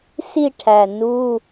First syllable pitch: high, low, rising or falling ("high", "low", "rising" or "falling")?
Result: falling